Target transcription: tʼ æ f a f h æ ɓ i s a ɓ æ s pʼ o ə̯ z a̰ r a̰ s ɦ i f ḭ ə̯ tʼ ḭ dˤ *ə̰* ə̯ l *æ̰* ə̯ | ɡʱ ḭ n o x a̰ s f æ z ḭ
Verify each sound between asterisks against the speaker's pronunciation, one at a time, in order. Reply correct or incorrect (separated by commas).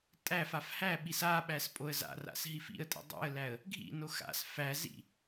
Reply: incorrect, incorrect